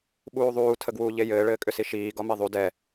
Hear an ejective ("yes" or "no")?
yes